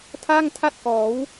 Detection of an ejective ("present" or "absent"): absent